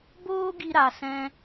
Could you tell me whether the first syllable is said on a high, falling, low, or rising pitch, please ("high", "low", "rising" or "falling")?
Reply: high